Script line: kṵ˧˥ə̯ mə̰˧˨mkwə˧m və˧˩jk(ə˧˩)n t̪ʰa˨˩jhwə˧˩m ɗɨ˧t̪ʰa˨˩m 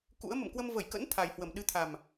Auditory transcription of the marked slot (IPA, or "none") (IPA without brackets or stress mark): ə̰˧˥